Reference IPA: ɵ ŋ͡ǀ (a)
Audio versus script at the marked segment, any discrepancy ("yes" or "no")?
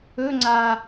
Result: no